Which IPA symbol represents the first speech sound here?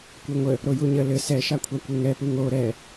kʷ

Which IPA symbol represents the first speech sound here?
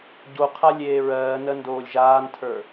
ɟ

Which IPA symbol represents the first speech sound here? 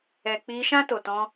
ɛ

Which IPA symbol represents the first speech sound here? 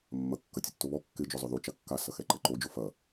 mː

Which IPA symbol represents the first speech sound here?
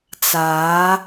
t͡s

